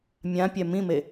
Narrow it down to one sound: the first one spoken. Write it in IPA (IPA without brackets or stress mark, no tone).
mʲ